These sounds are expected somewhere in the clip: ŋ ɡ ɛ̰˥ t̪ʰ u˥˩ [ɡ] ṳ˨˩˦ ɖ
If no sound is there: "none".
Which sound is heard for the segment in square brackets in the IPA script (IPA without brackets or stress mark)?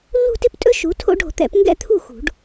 x